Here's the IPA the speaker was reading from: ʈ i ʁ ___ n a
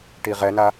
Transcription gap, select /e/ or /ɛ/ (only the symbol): ɛ